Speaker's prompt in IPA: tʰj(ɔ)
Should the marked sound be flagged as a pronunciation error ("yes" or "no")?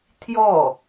no